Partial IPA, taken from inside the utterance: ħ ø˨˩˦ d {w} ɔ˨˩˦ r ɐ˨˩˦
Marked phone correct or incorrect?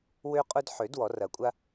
correct